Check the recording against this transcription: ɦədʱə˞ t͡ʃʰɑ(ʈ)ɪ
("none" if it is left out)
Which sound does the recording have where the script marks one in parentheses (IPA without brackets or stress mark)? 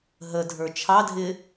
dʱ